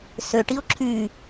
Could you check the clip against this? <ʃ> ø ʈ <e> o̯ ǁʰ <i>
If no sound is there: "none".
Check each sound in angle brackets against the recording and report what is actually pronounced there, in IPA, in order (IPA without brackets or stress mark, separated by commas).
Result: s, i, y